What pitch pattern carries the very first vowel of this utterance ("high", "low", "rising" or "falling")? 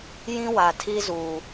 high